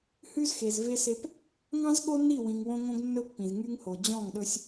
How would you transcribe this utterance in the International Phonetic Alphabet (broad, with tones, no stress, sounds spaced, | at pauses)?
h ʉ˦ z x e˨ z v e˦ s e˦ p | ŋ ɑ̃˦ z ɠ o˦ nː i˦˨ w ĩ˨ ŋ w õ˦ ŋ õ˦ ɡ nː ɵ˦ pː ĩ˨ z ŋ y˦ ŋ h o˨ d͡ʑ ɔ̃˦˨ ŋ ɗ ɵ˦ sʲ